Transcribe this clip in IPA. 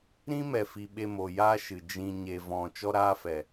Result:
ɾ ĩ˦ m ɛ˨ f i˨ ɓ e˧ m o˨ j a˦ ʃ ɨ˨ d͡ʒ ĩ˧ ɲ e˧ v ɔ̃˧ t͡ʃ ɔ˦ ɾ aː˦ f ɛ˨

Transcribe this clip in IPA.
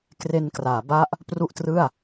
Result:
k r e˧ n k r aː˩˦ b a˦˥ ʔ | p r u˥˩ ʔ t r ɯ˥˩ a̯

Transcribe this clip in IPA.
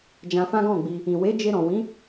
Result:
d͡ʒ ã˧ f ã˦ ɡ ɔ̃˦˨ ɡ͡b i˧ | ĩ˨ w e˨˦ d͡ʒ e˧ ɾ ɔ̃˨ w ĩ˨˦

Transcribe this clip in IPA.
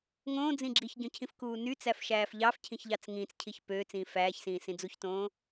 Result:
ŋ õː d͡z ĩ ɡ͡ǁ i ç ɟ õ cʰ ĩ f k uː n y t͡s æ f ʃ æː f ʎ ɑ f cʰ ĩ ç ʎ ɑ t͡s ŋ ĩː t͡s cʰ i ç p øː t͡s ĩː f æː ç s ĩː s ĩ d͡z u ç t õː

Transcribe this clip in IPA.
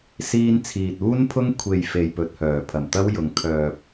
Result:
s iː˧ n t͡sʰ iː˨ t̚ uː˥ n pʰ ʊ˥ ŋ kʷʰ e˨ j f e˨ j p ɵ˨ t̚ h œː˨˩ pʰ ɐ˨˩ m t̪ ɐ˥ w j ʊ˨ ŋ kʰ œː˨ p̚

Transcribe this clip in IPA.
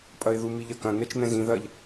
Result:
pʼ ɐ ɪ̯ ð u m i ʎ ɐ k ɐ̃ n ɛ t͡ʃ n̪ ɛ̃ z ĩ ð ɐ ʎ

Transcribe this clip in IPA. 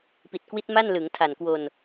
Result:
p i˨˩ t̚ k w i˦˥ t̚ m a˥˩ n l ɯ˩˦ ŋ tʰ a˨˩ n k w o˧ n

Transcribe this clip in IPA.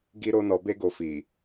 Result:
ɡ i˧ ɾ o˧ n ɔ˧ b e˦ ɡ o˧ f i˨

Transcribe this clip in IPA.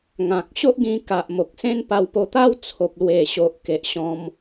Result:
ŋ ã˨ k̚ ɕ o˦ ʔ ɡ ĩ˧ k a˨ ʔ m o˨ k̚ s ẽ˦ n p a˧ w p o˧ t̪ a˦ w t͡sʰ o˨ p̚ l w e˨˩ ɕ o˨ ʔ k e˨ ʔ ɕ ɔ̃˧ m

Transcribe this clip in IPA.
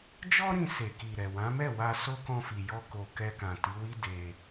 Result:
d͡ʒ ɔ˦ ɾ ĩ˧ s e˨ k i˨ ɾ ɛ˨ w ã˨˦ m ɛ˦˨ w a˧ s o˦ k ɔ̃˧ f i˨ j ɔ˧ k o˨ k ɛ˧ k ã˨ t i˨˦ w i˦ d e˧

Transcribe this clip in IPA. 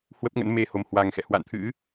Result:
h w ə˦˥ p̚ ŋ ə̰˧˥ n m e˧ h o˨˩ m h w a˨˩ ŋ x ɛ̰˧˨ h w a̰˧˨ n t̪ʰ ɨ̰˧˥

